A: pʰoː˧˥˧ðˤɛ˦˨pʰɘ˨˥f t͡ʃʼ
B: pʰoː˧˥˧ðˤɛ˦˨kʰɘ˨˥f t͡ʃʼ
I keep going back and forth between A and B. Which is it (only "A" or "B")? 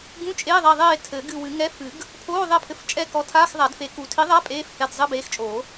A